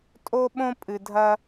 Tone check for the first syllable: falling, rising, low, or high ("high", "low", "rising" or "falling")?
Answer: high